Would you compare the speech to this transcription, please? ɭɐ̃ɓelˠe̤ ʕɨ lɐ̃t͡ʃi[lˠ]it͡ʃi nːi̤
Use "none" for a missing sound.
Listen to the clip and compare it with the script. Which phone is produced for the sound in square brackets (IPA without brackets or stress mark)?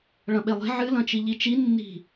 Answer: ʎ